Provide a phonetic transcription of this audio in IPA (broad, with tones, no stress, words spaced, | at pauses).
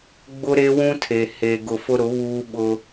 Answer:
ɡ͡bʊ˦ɾe˦wũ˦tʰe˨ he˨ ɡʊ˨ fʊ˦ɾʊ˨˦ βuː˦ɓʊ˦